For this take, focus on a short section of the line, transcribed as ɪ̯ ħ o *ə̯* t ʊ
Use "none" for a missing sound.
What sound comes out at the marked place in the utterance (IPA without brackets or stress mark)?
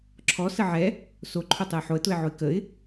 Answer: ə̯